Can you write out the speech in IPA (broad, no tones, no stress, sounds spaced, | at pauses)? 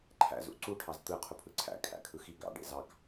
ǃʰ æ̰ z ṵ ǀ u ʈʰ ɑ z t̪ ɯ qʰ u pʰ ɯ ǀʰ æ̰ kʰ æ̰ kʰ ɯ x i ɡ ɑ̰ ɖ ḛ z ɑ k